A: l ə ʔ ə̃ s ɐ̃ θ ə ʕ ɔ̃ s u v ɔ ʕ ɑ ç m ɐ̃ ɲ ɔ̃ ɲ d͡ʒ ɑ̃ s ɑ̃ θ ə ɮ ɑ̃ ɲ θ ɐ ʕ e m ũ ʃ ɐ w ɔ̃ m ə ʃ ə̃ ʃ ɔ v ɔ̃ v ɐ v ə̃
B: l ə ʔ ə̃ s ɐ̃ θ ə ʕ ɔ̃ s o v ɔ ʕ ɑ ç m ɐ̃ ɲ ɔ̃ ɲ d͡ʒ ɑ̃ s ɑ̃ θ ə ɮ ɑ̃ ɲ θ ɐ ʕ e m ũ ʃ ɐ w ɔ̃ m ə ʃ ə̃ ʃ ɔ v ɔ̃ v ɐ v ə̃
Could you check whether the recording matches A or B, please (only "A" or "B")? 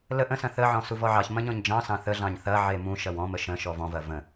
A